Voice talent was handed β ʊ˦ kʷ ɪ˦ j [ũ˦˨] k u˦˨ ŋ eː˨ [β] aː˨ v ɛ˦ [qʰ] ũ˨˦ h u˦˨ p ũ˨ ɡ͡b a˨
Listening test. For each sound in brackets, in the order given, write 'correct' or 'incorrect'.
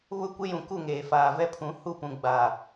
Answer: incorrect: ũ˨, incorrect: f, incorrect: pʰ

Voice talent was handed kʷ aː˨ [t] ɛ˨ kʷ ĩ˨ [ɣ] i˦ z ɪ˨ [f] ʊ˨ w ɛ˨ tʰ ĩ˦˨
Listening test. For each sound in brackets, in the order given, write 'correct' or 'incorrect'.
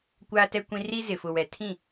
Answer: correct, incorrect: r, correct

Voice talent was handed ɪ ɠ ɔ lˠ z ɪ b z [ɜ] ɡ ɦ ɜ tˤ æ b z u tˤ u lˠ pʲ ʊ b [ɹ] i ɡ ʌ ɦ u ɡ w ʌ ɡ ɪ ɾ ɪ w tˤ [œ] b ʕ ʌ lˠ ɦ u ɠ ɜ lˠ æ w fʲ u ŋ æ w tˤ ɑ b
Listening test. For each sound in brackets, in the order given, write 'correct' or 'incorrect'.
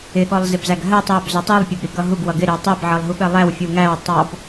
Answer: incorrect: æ, incorrect: ɾ, incorrect: ɛ

